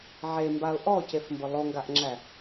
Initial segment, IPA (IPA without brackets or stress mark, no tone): ʕ